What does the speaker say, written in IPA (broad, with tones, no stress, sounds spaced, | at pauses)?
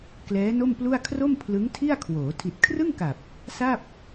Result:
k l ɛː˦˥ n o˥˩ m p l u˥˩ a̯ kʰ r o˥˩ m pʰ l ɯ˦˥ ŋ tʰ i˥˩ a̯ kʰ w oː˩˦ tʰ i˨˩ t̚ kʰ r ɯ˥˩ ŋ k a˨˩ p̚ | s a˥˩ p̚